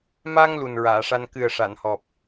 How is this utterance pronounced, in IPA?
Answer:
ma˧ŋ lu˨˩nɹaː˨˩˨ʂa˧n kɨ˨˩ə̯ ʂa˨˩˨nhɔ˨˩p̚

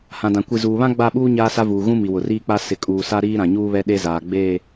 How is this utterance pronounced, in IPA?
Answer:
hã˨dã˨ kʷi˨zuː˨βã˦ ɡ͡ba˦˨ɓuː˦ ɲaː˦sa˦vuː˨ ɣũ˦mi˨wʊ˨ riː˦k͡pa˦ sɪ˨kʼuː˨sa˦ ɾiː˦ɾã˨ɲuː˦βɛ˦ ɗe˦zaː˨ ɡ͡beː˦˨

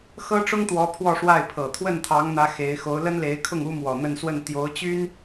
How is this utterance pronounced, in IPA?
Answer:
xɤ˥ʈ͡ʂʊ˥ŋt̪wɔ˧˥ pʰwɔ˥˧ʂwa˥˩ɪ̯ pʰɤ˨˩ t̪ʰwə˥˩nt̪ʰɑ˧˥ŋn̪ä˧˥ xe˧˥ɪ̯ xo˧˥ʊ̯ lə˥nle˧˥ɪ̯kʰʊ˥˩ŋ u˥mwɔ˨˩ n̪ə˥˧nswə˥˩n t̪jo˧˥ʊ̯t͡ɕy˥n

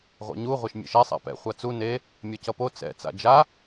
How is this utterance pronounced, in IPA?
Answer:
ʁʷɛ̰ɲu ʁʷeʃmʲḛʃɛ sˤa̰pɛ̰ χʷat͡su ne | mʲʌcʌpo t͡sɛ̰ t͡sa̰d͡ʒa

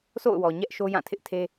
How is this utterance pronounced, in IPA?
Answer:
sʰo̰˦˨ʊ̯wɔ˨ ɲɛ˦ʔʃo˦jã˦˨tʰɪ˦ʔ tʰe˦

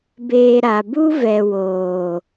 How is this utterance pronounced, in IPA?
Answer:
beː˨ ɾa˨ bu˦vɛ˨woː˨

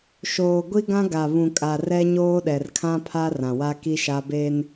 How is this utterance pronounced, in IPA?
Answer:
ʃoː˨ ɡʷi˦ɡã˦ɡa˨ βũ˨kʼa˨ rɛ˦ɲoː˦ɗɛ˨r kʰã˦pʰa˦ rã˨wa˦ki˦ʃa˦ be˦n

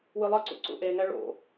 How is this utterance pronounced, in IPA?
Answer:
wɯlˠʌǀṵ ǀṵʔeŋɛ ɭo̰

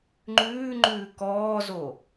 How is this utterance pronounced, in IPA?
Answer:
ŋ͡ǃʉːŋ͡ǃʉː kɔːzo

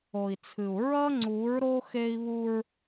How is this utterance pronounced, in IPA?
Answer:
o˨i̯t͡sʰɨ˨u̯ ɹʌ˦ŋ͡ǀu˨˦ɹɾo˦ xe˦i̯βu˦ɹ

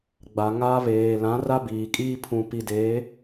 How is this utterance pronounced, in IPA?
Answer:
ɡ͡ba˨ŋaː˦ βeː˨ lã˨˦ ra˦biː˨ kʼiː˦pʰũ˨pi˨ de˨˦

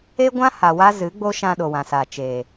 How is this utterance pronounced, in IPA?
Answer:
e˦ɡʷã˦ ha˨wa˦ zɨ˨˦ɡ͡bo˦ ʃã˧ɗo˨wã˨sa˨ t͡ʃeː˨

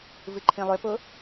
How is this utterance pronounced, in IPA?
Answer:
vɨǃʰĩlˠʏpʊ

